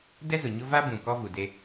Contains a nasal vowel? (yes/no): yes